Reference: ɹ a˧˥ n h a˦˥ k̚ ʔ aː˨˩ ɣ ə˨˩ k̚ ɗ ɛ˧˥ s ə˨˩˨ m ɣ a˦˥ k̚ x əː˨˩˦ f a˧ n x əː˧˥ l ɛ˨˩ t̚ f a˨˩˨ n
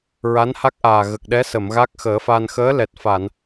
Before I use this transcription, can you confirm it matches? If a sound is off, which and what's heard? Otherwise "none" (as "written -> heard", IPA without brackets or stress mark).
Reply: none